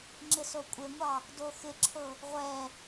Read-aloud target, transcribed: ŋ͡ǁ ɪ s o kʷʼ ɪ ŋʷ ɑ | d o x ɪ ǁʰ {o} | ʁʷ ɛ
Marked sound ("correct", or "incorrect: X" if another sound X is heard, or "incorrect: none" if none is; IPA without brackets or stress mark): incorrect: ɤ